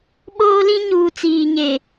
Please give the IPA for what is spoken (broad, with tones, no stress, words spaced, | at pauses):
ɓoː˦lĩ˦ɲuː˨ t͡siː˨ɲe˨